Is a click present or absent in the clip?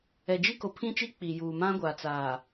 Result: absent